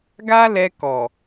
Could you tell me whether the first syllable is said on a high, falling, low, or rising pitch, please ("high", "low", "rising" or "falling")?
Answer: high